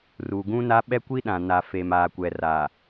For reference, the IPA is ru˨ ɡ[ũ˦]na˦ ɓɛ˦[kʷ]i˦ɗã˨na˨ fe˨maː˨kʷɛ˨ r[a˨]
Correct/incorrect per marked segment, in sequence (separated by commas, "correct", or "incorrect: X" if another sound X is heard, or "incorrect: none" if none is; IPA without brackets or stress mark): correct, correct, incorrect: aː˨